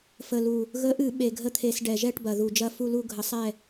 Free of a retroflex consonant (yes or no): no